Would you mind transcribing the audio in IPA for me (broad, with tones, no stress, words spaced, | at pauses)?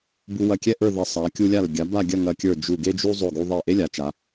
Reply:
bu˧wɐ˧˩kʲɛ˥ ʔə˞˥˧ðɐ˧ sˤa˩˧ kʲu˧lʲa˧˩l ɡʲa˩˧ ba˥˧ɡʲɐ˥˧ŋɐ˧kʲə˞˧˩ d͡ʒu˧˩ɡe˥d͡ʒu˥ zˤo˧˩ɡu˧ ðˤɛ˧˩ ʔe˥lʲa˩˧t͡ʃa˩˧